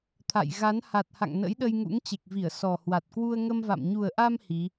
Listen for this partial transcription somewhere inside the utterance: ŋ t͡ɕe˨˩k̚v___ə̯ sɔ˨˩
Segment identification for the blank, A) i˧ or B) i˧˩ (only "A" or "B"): B